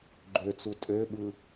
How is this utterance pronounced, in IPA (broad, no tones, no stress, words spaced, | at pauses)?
ɡ͡ǃøt͡su tʼøɓɯ